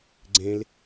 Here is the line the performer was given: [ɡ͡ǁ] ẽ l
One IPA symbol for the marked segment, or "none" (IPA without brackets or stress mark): ɡ͡ǀ